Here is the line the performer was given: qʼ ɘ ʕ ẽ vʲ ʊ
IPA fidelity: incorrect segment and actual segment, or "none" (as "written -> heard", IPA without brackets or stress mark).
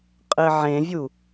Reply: ʊ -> u